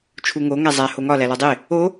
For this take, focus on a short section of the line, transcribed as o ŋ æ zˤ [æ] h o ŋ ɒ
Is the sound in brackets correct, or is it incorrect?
correct